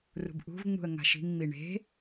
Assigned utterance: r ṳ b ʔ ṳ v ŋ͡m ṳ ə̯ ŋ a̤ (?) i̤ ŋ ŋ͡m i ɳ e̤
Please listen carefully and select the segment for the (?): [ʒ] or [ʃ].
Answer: ʃ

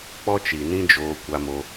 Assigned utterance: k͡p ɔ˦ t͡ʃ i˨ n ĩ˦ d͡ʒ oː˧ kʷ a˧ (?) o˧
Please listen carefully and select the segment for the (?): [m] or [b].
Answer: m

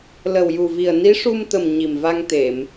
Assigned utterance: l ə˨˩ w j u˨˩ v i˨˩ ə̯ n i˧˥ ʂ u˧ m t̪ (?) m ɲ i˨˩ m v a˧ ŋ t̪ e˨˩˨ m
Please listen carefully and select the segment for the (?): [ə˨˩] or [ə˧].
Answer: ə˨˩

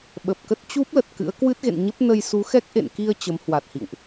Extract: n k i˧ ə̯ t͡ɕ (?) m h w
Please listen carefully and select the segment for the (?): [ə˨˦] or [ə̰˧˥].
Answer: ə˨˦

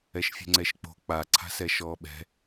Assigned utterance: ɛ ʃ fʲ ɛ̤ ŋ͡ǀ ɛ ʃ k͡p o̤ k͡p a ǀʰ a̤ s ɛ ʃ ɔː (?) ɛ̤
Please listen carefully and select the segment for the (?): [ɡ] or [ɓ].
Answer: ɓ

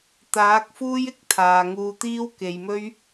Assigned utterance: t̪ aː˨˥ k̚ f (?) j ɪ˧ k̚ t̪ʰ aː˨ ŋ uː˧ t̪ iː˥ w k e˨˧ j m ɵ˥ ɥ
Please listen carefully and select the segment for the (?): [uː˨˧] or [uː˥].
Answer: uː˥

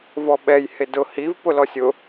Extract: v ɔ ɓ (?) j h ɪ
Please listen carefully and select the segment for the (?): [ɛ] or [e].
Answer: ɛ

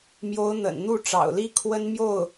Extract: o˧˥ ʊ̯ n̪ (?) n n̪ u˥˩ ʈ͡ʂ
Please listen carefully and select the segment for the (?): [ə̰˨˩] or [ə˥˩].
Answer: ə̰˨˩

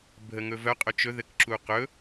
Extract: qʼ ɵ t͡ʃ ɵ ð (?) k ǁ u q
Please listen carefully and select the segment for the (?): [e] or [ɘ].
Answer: ɘ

